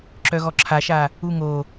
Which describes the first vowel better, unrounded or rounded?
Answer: rounded